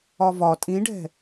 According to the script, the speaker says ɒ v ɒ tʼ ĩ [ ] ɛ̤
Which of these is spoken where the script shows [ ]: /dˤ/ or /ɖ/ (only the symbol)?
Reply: ɖ